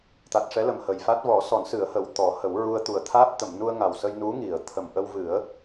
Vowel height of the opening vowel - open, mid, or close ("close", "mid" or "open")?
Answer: open